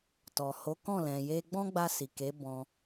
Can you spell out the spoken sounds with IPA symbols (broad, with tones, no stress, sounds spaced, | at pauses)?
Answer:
t ɔ˨ h o˨˦ k ɔ̃˦˨ l ɛ̃˨ j e˧ ɡ͡b ɔ̃˦ ɡ͡b a˧ s i˨ k e˨˦ b ɔ̃˧